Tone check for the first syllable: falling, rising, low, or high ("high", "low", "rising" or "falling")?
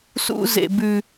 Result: high